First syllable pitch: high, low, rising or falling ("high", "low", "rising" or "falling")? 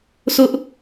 high